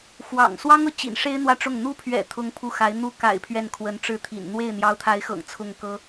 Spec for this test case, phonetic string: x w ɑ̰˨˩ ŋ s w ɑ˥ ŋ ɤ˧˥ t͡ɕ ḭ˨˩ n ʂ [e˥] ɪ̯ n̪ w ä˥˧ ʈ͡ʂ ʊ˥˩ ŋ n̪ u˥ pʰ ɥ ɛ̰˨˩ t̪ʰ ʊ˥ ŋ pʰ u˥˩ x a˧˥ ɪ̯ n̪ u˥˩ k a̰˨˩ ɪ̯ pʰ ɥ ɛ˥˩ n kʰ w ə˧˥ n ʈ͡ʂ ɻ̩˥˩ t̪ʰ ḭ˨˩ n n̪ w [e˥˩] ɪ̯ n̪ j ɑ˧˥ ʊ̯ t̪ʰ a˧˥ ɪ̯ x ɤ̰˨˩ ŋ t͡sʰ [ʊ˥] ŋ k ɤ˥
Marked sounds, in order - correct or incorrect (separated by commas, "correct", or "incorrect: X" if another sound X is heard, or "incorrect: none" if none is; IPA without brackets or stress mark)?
correct, correct, incorrect: ʊ˥˩